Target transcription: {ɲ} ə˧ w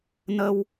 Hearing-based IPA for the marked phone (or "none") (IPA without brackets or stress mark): n